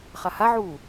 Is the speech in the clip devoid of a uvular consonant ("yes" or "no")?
no